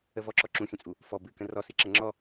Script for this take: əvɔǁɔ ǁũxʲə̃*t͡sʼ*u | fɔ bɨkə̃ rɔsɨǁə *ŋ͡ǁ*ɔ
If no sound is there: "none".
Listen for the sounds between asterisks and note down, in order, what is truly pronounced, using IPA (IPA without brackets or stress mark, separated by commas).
t͡sʼ, ŋ͡ǁ